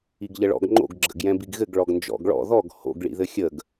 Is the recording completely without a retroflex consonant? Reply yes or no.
no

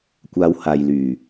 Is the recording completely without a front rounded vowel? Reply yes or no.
no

